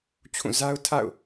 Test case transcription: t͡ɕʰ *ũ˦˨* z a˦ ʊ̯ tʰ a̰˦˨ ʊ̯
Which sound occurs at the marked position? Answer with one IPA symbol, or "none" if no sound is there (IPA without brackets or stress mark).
ũ˦˨